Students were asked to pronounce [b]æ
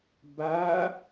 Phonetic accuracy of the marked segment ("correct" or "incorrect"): correct